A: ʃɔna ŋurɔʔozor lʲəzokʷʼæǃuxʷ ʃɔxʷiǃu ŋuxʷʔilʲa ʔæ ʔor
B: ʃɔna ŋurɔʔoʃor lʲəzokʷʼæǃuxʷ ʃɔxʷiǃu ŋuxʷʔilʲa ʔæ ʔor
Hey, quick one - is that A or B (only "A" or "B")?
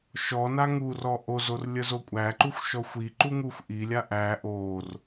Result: A